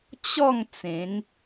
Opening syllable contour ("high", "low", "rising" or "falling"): falling